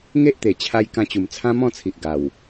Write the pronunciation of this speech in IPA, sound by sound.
ŋe˦ʔt̪e˨˩ t͡ɕʰa˧j kã˧t͡ɕu˨˩m t͡sʰã˦mɔ̃˥˧t͡sʰi˨ʔ ɡa˨˩w

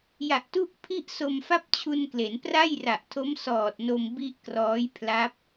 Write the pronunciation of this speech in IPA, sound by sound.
ja˨˩ʔtu˥˩ʔpʰi˥˩ʔso˧m fa˥˩p̚t͡ɕʰu˧nkle˩˦n pra˥˩jra˨˩ʔtʰo˦˥m sɔː˨˩t̚no˧m bi˥˩ʔ krɔː˦˥jpʰla˦˥p̚

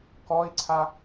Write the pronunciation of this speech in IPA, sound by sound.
kɔi̯ǀʰa

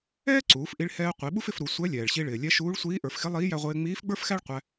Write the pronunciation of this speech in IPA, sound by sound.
ɛː˥ǀuː˩˧fʔi˧ɭ hɛː˧ qʷi˩˧ɓu˥fɪ˧fɾu˩˧ sʷɛ˧˥ lʲɛː˩ɭɕi˧ɭɪː˩lʲɛ˧˥ ʃuː˧˥ɭsʷiː˧˥ ʔə˞˩˧fxɪ˧˥lˠiː˧˥ jæ˧ʁʷɪː˧ ŋ͡miː˧˥fɡ͡bə˞˥fxæ˥ɭ qʷæ˧

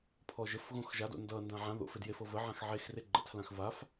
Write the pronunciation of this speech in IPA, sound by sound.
pʰɔʒəfɣõx ʒado̰ ndʌndã ʕã ðo̰f edjefɤ və ʕãxʕexre ɡ͡ǃə̰tʰlãx vaf

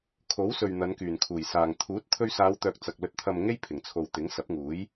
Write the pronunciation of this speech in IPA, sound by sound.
kʰo˨˥wsɵ˨ɥ n̪ɐ˨˧nkyː˨˩nkʰuː˨˩jsaː˨ŋ t̪ʰuː˨˥t̚ t̪ʰɵ˧ɥsaː˨˧wt̪œː˨k̚ t͡sɐ˨k̚ lɵ˨t̚t̪ʰɐ˨m ŋe˥j pʰɪ˨˩ŋt͡sʰo˨w t̪ɪ˨˥ŋsɐ˨˥p̚ŋuː˨˥j

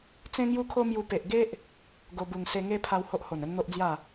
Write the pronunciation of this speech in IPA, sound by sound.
t͡sẽ˦ŋju˦kʰo˦mju˧ pe˨ʔɡe˦ʔ | ɡo˧ bu˨˩ŋse˧ŋe˦pʰa˧w ho˦ʔ ho˨˩nə˦nn̪o˦ʔd͡zja˥˧

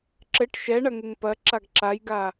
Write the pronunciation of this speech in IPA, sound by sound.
ǁɘʈ ʃɛɳɐŋɘŋ pɐǁaɡ ǁajɡa

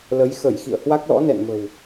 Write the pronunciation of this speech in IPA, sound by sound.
lə˨˦j xə˧˩j xḭ˧˨ə̯hwa˦˥k̚lɔ̰˧˥ nɛ̰˧˨nmə̤˨˩w

